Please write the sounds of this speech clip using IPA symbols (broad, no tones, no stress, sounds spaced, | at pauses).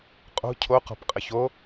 qʼ o̤ cʰ o q ɔ̤ p qʼ ə ç o